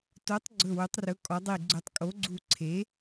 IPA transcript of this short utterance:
to˩˥tˤ ɡ͡ǀɵ˧˩wɵ˩˥tˤrɵ˩˥ kʼɔ˩˥dˤi˧˩ɡ͡ǀɵ˧˩tˤ kʼo˩˥ɡ͡ǀu˧˩ǀʰe˩˥

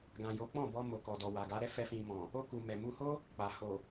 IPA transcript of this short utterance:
ɡã˨jo˨˦k͡pɔ̃˦˨ bɔ˧ mo˨kɔ˨ dɔ˨wa˨ɡa˨˦ɾɛ˦ fɛ˧fĩ˨mɔ̃˨ | o˧ku˨ mɛ˨mu˧ho˦ | k͡pa˨ ho˨

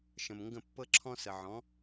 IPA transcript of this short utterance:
ʃə̃˩mŋɡə̃˥˩ pːɤ˥ǁʰɔ̃˥sə˩ʕɔ̃˩˥

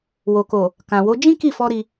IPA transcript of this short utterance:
wo˨ko˨ | kã˨wo˨˦ d͡ʒĩ˦ki˦˨fɔ˧ ɾi˧

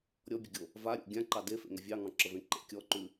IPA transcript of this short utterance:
ɾʲɔbʲəɡʲo | vaɾʲo̰ ɡʲãǃɑ defḛŋə vʲɑŋɑ̃ǁəvẽ ǃḛ kʲɔǃʉ

